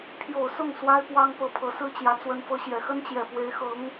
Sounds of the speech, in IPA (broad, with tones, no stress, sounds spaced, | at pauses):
pʰ j o˨˩ ʊ̯ s ʊ˥˩ ŋ s w a˥ ɪ̯ p w ɑ˥ ŋ p ɤ˧˥ pʰ ɤ˧˥ s ɹ̩˥ t͡ɕ j ä˧˥ t͡s w ə˧˥ n f ɤ˧˥ ɕ j ɛ˨˩ x ə˥ n t͡ɕ j ɛ˨˩ p w e˧˥ ɪ̯ x ɤ˧˥ ŋ